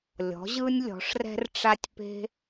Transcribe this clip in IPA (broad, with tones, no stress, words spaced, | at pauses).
lʲɔ̤˩˧ʑɯ˧nʲ lʲɔ̤˩˧ʂrɛ̤˧rʈ͡ʂa˧tʲpe̤˧